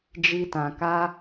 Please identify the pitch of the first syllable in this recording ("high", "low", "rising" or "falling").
high